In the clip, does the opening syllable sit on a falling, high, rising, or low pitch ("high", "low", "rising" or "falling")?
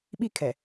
falling